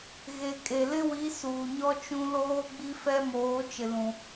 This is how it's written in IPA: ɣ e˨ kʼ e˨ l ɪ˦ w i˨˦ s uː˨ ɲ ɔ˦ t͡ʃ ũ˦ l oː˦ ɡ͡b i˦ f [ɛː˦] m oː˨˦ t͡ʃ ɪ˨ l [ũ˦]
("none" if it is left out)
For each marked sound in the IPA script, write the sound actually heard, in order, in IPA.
ɛ˦, ũ˨

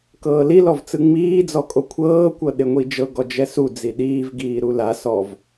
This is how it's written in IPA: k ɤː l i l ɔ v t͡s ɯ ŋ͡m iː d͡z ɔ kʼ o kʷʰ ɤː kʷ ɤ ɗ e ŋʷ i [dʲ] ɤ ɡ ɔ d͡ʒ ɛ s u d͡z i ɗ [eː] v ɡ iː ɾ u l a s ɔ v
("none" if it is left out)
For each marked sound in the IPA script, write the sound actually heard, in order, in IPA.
d͡ʒ, iː

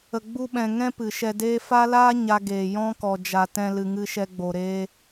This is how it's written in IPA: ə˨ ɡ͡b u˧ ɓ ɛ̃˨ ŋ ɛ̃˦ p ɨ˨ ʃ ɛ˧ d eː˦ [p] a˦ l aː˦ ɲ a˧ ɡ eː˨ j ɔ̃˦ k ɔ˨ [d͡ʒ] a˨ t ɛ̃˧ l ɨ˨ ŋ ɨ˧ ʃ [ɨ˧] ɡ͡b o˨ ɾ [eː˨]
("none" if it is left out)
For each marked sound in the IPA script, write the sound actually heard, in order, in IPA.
f, d͡ʒ, ɛ˧, eː˧

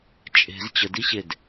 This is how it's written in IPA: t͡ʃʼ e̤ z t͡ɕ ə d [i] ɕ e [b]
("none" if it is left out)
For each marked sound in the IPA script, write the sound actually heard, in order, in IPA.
i, d

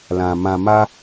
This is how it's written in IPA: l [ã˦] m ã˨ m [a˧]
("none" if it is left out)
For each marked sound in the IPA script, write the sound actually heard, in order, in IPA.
ã˨, a˧

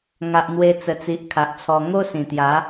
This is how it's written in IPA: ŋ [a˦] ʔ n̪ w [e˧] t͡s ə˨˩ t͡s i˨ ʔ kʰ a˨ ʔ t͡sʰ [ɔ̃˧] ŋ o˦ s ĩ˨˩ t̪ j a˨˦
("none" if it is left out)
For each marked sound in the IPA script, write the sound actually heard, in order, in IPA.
a˨, e˧, ɔ˧

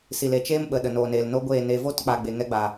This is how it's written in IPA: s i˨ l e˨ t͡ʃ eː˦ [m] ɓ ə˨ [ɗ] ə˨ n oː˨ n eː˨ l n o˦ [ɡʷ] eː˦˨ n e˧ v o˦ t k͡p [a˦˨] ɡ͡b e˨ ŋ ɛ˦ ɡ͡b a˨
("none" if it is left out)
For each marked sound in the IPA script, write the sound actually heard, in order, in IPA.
m, ɗ, ɡʷ, a˨

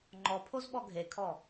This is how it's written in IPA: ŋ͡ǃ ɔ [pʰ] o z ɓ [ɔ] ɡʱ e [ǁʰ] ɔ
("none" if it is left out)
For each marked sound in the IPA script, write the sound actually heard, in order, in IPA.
pʰ, ɔ, kʰ

